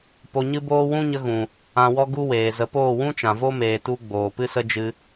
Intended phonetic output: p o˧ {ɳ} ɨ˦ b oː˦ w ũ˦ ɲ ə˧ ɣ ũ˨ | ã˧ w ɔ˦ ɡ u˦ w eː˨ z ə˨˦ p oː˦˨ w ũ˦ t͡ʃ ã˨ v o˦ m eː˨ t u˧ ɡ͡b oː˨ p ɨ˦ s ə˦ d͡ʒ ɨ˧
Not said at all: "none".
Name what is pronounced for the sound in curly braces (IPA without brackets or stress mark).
ɲ